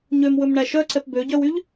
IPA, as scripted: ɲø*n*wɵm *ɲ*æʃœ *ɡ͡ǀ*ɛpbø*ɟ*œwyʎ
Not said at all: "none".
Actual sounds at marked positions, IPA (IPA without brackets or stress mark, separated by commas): m, ɳ, ǀ, ɟ